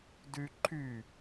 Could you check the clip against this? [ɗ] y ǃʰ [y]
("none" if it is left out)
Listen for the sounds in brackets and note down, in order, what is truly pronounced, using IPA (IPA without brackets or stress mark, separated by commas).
d, y